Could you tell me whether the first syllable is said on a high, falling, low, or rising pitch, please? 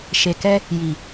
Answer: low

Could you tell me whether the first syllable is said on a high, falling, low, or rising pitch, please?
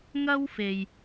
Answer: high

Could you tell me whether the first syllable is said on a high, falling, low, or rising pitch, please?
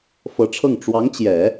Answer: rising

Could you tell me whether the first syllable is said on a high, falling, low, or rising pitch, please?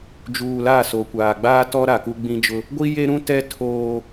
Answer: low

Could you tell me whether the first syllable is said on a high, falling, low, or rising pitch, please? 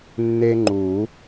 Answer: high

